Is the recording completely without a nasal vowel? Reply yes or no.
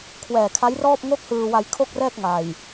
yes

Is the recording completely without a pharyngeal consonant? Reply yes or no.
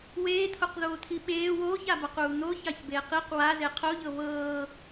yes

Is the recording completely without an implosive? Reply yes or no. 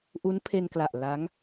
yes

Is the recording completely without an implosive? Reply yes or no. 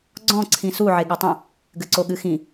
no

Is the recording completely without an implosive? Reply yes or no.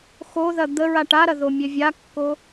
yes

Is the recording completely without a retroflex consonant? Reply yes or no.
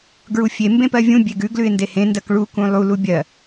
no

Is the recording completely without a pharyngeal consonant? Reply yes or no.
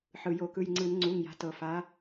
no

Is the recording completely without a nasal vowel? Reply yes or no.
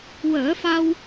yes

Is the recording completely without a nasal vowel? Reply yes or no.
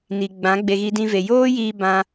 no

